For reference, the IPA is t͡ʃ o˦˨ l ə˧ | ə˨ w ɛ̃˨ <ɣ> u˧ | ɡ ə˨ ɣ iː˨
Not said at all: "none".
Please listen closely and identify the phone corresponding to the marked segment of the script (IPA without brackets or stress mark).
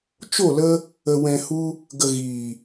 h